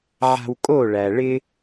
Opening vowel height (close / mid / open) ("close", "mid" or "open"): open